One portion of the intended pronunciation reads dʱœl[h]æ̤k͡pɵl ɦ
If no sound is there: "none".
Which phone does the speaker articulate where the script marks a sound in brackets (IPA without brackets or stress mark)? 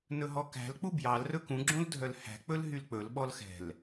h